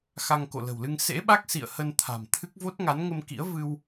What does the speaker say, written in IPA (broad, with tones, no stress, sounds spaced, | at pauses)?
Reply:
x a˧ ŋ k o̰˧˨ l ə̤˨˩ w l ɨ˧ ŋ s ḛ˧˥ ɓ a˦˥ k̚ s ḭ˧˨ ə̯ h ə˧ n t̪ʰ a̤˨˩ m t̪ʰ ɨ˦˥ k̚ v o˦˥ t̚ ŋ a˨˦ n ŋ ə˧ m k ḭ˧˥ ə̯ v ɨ˧ w